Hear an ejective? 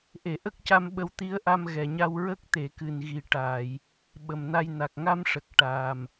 no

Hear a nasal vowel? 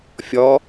no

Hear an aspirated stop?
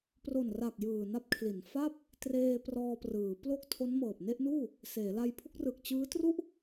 yes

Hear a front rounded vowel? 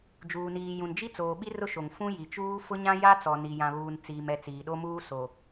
no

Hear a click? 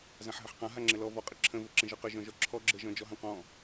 yes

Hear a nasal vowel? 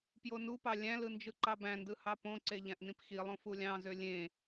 yes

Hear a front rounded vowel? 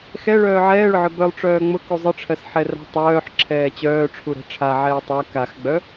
yes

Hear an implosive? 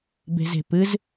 no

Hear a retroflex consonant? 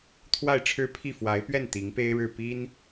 yes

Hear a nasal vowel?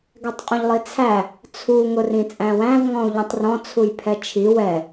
yes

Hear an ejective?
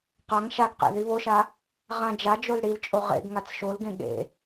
yes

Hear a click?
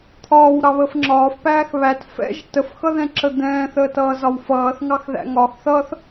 yes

